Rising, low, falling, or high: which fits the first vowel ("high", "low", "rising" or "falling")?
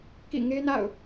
falling